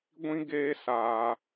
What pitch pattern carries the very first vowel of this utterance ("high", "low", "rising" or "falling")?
high